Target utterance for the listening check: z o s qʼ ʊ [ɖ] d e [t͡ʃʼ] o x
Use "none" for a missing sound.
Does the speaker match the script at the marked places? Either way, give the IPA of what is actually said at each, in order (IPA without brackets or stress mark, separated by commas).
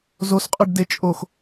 ɖ, t͡ʃʼ